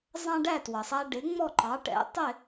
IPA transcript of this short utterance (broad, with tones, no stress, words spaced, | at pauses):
zˤɑ̃˥ ɖæ˥˩twʌ˩sˤæ˧ ɖɪ˩˥ ŋ͡mɔ˥˩ǃɑ˩˥ʈɛ̰˩˥ tˤɪ˥˩